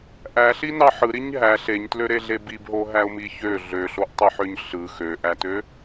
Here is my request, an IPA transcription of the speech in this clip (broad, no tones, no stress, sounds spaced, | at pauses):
ʔ æ ɬ i n ɑ ħ ɯ ɾ i ɲ ɦ æ ɬ e ɲ t l ø ɾ e ɮ e b i b ɦ o ɦ æ ʊ̯ m i ç ø ɮ ø ɬ o ʔ tˤ e ħ ø ɲ ɬ ɯ x ø ʔ æ t ø